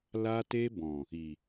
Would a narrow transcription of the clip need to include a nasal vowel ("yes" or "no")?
yes